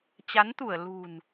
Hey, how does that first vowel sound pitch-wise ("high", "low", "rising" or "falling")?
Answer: rising